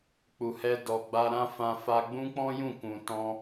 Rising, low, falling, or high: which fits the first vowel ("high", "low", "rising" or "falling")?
low